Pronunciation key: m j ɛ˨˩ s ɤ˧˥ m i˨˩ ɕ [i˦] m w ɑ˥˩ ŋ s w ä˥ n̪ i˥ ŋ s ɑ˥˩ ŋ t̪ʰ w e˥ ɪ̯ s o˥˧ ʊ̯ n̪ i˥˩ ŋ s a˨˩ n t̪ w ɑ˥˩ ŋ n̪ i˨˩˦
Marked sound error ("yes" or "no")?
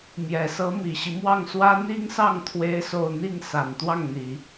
no